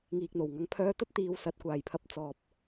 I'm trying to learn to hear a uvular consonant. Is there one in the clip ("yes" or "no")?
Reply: no